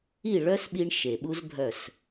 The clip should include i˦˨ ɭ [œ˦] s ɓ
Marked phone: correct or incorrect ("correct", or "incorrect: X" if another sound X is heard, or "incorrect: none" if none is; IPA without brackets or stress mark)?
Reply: correct